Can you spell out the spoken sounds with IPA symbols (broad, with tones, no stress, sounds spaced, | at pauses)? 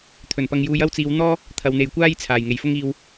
t̪ʰ ɵ˨˩ n p ɐ˧ ŋ j uː˧ j ɐ˥ w t͡s iː˨˧ w n̪ ɔː˥ | t̪ʰ ɐ˨˧ w n̪ e˨ j kʷ aː˥ j t͡sʰ aː˨˩ j ŋ e˨˩ j f ʊ˥ ŋ iː˧ w